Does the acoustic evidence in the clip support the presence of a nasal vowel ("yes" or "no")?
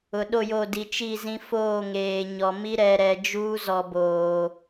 yes